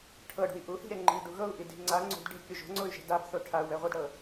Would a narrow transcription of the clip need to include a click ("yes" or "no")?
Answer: yes